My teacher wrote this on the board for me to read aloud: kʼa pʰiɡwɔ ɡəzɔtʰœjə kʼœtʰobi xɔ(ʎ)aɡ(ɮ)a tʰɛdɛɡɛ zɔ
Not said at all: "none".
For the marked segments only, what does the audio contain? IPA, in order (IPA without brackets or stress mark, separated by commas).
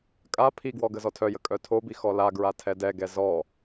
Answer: l, ɹ